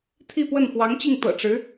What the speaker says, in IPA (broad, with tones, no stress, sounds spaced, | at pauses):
t̪ʰ i˥˧ p w ə˥˩ n x w ɑ˧˥ ŋ t͡ɕ i˥˩ ŋ t̪ ɤ̰˨˩ ʈ͡ʂ ɻ̩˧˥